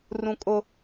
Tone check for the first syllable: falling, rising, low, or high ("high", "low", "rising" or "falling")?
high